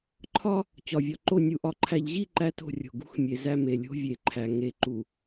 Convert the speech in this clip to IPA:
ǃʰ ɒ˦ | t͡ɕ ɒ˨ vʲ ɒ˨ ǃ o˦˨ nʲ u˨ ʔ ɒ˨ ǃʰ æ˨ ʎ ʑ i˦˨ ǃ æ˦ t o̤˦˨ rʲ o̤˨ ɡ ṳ˦ x mʲ e˨ z æ˦˨ m e˨ lʲ o̤˦ vʲ e˨ ǃʰ æ˨ ŋ e˨ ǃ u˨

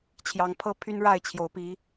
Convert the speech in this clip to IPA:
t͡ɕʰ j ɑ˧˥ ŋ pʰ ɤ˥ pʰ y˥ n ɻ a˥˩ ɪ̯ t͡ɕʰ j o˧˥ ʊ̯ p i˧˥

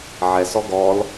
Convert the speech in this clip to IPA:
ʕ ɛ s ɔ ɡ ɔ l

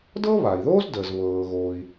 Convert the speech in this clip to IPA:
d ɤ˥ β a˩ i̯ ð oː˥ z d əː˩ z β ɤː˩ ɣ oː˩ i̯

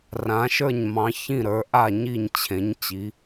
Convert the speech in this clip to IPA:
r ã˩˧ ʃ ə˞˧˩ ɲ m ɑ̃˩˧ ç ĩ˧˩ ɾ ə˞˩˧ ʔ a˧˩ ɲ i˧˩ ɲ t͡ɕʰ ẽ˩˧ ɲ t͡ɕ i˩˧

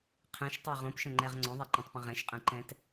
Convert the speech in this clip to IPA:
qʰ ɛ̃ ʃ tˤ ɛ ʁ õ p ʃ ə̃ ŋ͡ǃ ɛ ʁ ŋ͡ǀ õ ðˤ ɛ ǃ ɛ̃ tˤ p ə̃ ʁ ɛ̃ ʃ qʼ ɛ̃ ǃ ɛ̃ t

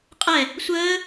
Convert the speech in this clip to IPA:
qʼ ɛ | sʷ əː

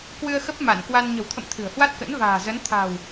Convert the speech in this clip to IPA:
k w ɨ˧ ə̯ x ə˦˥ p̚ m a˧˩ n k w a˧ n ɲ ə̤˨˩ w t̪ʰ ə̰˧˨ m t̪ʰ ɨ̤˨˩ ə̯ h w a˦˥ t̚ k ə̰˧˥ n v a̤ː˨˩ z ə˨˦ n t̪ʰ a̤˨˩ w

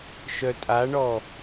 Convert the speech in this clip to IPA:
ʃ œ tʼ a ɳ ɔ

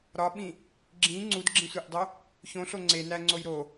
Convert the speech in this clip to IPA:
ɾ ɒ ɓ ĩ | ɡ͡ǁ ĩ ŋ͡ǀ u d ɡ͡ǁ ĩ sʷ e ʔ dˤ o | ç õ ɬ o ŋ͡ǀ e n æ ŋ͡ǀ o j ɾ o

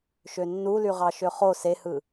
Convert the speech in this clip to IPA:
ʃ ø nː u l y ʁ ɑ ʃ ø χ o s e h ɯ

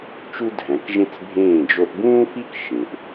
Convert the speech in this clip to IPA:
t͡ʃ u˦ dʱ æ̃˨˦ k ʒ ẽ˦ t͡s bʱ ẽː˦˨ d͡ʒ o˧ ʔ b ũː˦ f i˦ k ʃ ẽ˨ ʔ

